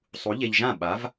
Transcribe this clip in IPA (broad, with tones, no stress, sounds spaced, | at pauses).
sˤ u˨˥ ʎ e˧ ʎ ʒ ã˥˩ ɓ a˨˥ v